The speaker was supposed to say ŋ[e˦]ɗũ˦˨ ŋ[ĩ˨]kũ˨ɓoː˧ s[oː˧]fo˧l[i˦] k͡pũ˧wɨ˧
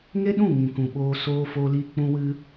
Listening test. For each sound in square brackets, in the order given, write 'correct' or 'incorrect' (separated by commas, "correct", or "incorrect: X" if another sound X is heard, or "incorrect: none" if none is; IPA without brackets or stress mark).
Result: correct, correct, correct, incorrect: i˧